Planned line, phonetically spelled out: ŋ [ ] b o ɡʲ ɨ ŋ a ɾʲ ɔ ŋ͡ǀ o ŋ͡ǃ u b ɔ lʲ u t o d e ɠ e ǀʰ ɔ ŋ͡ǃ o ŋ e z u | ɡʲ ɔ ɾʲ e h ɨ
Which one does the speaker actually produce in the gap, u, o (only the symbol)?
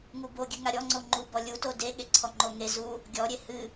u